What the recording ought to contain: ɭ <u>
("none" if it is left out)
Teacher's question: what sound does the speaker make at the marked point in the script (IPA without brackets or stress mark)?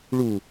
u